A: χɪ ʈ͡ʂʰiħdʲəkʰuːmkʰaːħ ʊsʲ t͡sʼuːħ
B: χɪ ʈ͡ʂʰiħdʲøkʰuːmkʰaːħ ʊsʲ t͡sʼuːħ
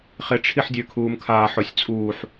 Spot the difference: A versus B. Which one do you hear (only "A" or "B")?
B